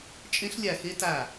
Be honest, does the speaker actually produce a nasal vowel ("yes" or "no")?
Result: yes